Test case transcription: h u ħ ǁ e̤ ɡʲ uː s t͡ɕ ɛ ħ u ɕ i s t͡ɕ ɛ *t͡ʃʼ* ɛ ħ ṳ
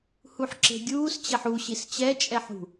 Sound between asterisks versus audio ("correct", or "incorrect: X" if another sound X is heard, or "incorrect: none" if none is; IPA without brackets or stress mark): correct